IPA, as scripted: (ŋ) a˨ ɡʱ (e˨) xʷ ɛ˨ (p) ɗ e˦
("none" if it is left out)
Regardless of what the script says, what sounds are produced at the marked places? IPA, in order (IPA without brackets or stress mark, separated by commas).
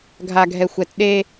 ɡʱ, ɛ˨, t